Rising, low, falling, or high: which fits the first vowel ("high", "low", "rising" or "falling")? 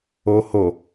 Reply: low